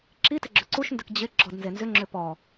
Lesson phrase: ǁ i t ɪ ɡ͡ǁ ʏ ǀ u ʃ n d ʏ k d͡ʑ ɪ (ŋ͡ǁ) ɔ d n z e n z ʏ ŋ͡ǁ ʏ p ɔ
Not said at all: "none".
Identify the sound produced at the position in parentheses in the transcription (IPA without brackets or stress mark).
ɡ͡ǁ